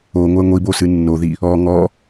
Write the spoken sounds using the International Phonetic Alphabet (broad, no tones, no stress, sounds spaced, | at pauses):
o ŋʷ ɛ ŋʷ i b o s ɨ nː o ð i | ɔ ŋ ɔ